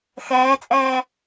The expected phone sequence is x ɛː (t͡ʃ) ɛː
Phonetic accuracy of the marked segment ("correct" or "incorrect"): incorrect